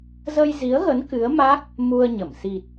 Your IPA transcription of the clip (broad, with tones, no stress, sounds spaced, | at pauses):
z ə˧ j z i˨˦ ə̯ ɣ ə˨˦ n k ɨ˨˦ ə̯ m a˦˥ k̚ | m u˧ ə̯ ɲ ə˧˩ m s i˨˩ t̚